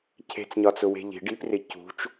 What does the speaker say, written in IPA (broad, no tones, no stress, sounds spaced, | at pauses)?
cʰ e̤ t͡s ɲ ɒ t͡s ʊ w e̤ ʎ i̤ ɖ i p r ɪ c ṳ t͡ʃ